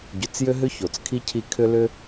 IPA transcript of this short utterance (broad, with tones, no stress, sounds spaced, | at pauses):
ɟ ʏ˨ t͡s j ʏ˥ ɦ ʏ˥ ç o˩ t͡s kʰ i˥ cʰ i˦ kʰ ʏ˥ l ʏ˦